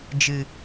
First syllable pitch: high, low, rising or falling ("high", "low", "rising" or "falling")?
low